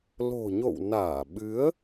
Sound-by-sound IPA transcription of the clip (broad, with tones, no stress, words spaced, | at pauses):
lo̤˨˩ɲo̰˧˨w naː˧˩ɓɨ˨˦ə̯